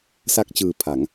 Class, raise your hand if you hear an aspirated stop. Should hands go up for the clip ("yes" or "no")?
yes